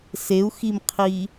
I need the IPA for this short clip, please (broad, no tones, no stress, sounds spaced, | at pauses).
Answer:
s e u̯ x i m qʰ i